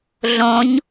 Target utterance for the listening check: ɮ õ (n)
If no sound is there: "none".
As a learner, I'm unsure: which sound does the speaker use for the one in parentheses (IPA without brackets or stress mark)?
ɲ